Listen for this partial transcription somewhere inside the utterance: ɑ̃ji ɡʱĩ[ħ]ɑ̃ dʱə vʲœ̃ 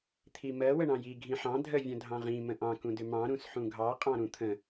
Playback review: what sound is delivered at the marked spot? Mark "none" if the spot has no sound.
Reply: ħ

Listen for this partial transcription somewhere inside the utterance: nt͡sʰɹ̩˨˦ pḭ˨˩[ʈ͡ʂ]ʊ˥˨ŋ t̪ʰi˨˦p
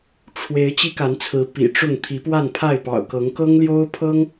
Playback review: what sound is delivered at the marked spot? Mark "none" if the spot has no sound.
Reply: ʈ͡ʂ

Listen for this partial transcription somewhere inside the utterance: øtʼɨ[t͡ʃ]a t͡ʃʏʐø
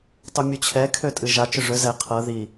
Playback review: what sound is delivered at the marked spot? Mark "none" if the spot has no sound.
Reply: ʒ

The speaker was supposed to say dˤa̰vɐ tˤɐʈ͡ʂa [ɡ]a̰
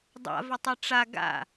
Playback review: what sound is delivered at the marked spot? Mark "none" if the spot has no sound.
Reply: ɡ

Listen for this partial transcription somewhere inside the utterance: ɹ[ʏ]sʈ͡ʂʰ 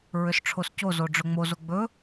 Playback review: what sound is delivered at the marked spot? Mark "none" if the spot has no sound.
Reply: ʏ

